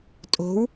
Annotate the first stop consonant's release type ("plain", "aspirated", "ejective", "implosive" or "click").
ejective